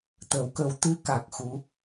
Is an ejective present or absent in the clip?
absent